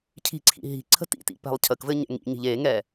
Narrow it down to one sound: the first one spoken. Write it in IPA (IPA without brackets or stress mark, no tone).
cʰ